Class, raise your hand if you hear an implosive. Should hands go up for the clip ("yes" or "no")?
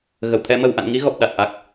yes